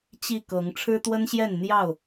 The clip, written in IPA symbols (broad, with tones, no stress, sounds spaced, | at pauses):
t͡ɕ i˥˨ k ɤ˨˦ ŋ ʈ͡ʂʰ ɻ̩˦ t̪ w ə˦ n ɕ j ɛ˥˨ n n̪ j ɑ˥˨ ʊ̯